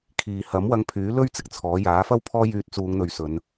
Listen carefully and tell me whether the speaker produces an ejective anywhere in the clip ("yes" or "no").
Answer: no